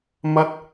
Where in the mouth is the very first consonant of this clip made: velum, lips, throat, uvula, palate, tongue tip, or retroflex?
lips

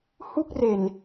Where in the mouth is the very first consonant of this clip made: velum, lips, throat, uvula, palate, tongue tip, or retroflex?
throat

